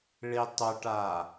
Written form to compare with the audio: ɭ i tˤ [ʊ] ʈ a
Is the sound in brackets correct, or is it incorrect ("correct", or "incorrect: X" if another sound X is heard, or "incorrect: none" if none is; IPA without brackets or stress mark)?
correct